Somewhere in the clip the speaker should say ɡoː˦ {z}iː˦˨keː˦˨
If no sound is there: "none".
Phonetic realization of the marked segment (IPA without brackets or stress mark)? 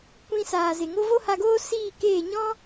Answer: s